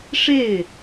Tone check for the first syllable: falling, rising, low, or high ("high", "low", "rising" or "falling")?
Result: falling